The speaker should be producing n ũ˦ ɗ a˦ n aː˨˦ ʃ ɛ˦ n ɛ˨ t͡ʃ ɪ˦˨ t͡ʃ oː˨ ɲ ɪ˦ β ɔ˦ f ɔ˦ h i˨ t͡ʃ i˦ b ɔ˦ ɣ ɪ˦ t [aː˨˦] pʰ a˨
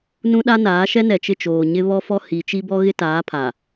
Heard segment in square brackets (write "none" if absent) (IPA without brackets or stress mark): aː˨˦